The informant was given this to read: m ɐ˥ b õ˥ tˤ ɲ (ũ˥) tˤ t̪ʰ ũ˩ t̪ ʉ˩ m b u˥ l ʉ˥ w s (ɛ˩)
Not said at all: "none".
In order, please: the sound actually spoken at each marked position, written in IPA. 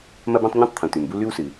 ũ˥, ɨ˩

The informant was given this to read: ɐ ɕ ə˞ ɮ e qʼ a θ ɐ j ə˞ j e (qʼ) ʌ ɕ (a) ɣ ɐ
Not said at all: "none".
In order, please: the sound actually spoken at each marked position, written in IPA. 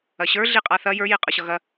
qʼ, ʌ

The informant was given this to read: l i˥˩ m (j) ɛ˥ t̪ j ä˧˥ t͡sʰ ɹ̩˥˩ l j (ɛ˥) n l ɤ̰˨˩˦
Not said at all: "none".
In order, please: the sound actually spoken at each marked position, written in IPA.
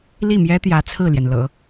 j, ɛ˩

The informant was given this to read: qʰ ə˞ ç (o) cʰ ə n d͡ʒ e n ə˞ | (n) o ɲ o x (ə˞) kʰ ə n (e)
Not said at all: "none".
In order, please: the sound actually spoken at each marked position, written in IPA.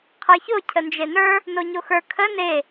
o, n, ə˞, e

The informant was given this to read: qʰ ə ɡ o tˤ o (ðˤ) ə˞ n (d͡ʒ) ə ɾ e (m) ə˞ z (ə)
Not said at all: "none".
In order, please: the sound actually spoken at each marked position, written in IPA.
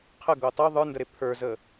ðˤ, d, pʰ, ə

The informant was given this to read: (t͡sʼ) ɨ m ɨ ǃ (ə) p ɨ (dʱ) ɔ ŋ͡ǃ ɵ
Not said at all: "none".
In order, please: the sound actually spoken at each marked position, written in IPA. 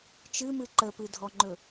t͡ʃ, ə, dʱ

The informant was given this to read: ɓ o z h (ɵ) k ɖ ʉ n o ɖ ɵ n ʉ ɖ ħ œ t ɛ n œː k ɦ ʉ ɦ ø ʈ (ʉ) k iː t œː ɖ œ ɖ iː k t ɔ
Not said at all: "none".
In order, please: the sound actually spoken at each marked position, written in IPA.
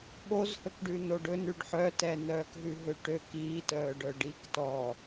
ɵ, ø

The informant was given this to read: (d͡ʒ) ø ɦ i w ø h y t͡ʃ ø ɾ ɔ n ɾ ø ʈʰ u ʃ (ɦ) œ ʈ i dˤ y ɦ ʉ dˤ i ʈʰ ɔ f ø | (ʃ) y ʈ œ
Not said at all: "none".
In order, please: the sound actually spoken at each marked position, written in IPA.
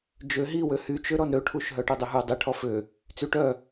d͡ʒ, ɦ, t͡s

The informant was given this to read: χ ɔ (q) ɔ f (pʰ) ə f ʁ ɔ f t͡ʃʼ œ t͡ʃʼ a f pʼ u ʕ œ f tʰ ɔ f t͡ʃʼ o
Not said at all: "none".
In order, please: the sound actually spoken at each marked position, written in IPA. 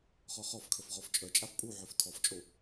χ, kʰ

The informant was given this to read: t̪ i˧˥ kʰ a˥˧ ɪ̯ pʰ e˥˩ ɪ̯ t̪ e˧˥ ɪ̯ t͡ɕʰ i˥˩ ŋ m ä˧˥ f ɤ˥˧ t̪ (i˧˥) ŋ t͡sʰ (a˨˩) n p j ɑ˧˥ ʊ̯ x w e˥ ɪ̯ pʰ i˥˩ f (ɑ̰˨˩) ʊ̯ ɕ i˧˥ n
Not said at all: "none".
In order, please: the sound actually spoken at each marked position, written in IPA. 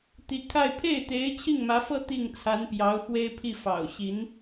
i˥˩, a˧˥, ɑ̰˨˩

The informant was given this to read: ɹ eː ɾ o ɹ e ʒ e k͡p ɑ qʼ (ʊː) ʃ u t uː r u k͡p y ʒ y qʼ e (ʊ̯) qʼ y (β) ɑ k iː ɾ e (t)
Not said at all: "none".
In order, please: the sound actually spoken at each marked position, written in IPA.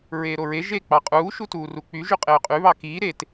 uː, ʊ̯, β, t

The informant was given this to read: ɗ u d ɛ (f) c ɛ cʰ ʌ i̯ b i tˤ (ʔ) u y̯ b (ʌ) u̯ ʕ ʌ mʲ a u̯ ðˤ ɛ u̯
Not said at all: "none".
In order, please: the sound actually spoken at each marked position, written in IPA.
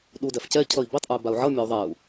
f, ʔ, a

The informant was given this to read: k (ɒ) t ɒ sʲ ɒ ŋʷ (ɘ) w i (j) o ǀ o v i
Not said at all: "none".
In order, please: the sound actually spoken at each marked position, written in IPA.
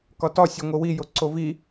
ɒ, ɘ, j

